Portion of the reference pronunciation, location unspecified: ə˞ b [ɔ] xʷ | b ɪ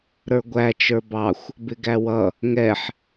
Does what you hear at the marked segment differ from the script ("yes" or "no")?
yes